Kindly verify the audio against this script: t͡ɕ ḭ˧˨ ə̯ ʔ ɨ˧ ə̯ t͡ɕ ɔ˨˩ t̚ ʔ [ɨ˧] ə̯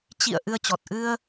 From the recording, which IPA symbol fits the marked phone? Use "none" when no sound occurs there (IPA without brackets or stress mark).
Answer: ɨ˧